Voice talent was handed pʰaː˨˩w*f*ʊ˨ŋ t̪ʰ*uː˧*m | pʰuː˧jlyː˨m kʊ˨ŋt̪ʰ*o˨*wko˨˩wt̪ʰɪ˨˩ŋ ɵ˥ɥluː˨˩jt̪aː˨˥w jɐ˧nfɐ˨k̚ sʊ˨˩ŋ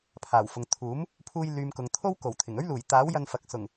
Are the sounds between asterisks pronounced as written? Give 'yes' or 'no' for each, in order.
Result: yes, no, no

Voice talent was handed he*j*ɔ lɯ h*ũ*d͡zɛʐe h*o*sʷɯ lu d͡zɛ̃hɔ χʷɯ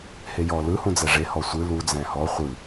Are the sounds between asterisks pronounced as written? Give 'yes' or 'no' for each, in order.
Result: yes, yes, no

